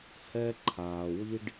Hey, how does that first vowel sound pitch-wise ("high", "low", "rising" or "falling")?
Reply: high